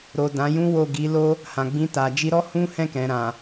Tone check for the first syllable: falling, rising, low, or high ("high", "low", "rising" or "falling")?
low